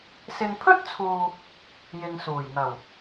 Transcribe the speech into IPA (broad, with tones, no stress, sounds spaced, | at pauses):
s ɪ˨ ŋ pʰ ɵ˥ t̚ t͡sʰ uː˨ | j ɪ˨ ŋ s uː˨˩ j n̪ ɐ˨˩ w